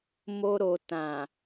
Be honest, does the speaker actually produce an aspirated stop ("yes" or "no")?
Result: no